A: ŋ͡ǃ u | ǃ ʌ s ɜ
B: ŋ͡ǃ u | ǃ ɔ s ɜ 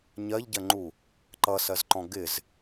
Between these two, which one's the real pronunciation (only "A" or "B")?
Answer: A